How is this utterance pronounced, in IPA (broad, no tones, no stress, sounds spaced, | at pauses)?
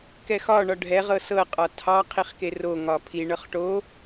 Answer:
k ɛ x ɒ ɳ ɒ ɖʱ ɛ ʁ ɤ s ɤ qʼ ɒ tʰ ɑ qʰ i χ k e r o ŋ ɒ pʰ i ɳ ɤ χ ʈ o